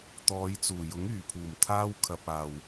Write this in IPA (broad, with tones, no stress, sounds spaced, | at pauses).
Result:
t̪ ɔː˨˧ j t͡s uː˨˩ j ʊ˨˥ ŋ yː˨˩ pʰ uː˨˩ m t̪ʰ aː˥ w kʰ ɐ˨ p̚ aː˨˩ w